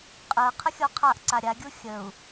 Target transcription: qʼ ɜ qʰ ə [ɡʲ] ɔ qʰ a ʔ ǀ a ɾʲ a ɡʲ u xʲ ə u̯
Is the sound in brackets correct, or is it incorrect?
incorrect